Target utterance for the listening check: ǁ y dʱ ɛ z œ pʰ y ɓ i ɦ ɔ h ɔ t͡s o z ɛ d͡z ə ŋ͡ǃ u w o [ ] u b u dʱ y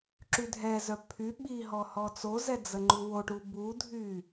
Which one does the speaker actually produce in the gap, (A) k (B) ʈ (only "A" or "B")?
B